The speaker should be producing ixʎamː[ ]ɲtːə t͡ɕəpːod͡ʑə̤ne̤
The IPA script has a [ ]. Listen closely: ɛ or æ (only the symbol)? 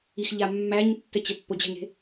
æ